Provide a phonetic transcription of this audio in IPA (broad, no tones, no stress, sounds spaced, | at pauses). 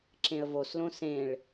ǁ ẽ ə̯ v o s l õ s ẽ ɭ